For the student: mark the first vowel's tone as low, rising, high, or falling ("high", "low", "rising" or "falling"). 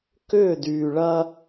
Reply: falling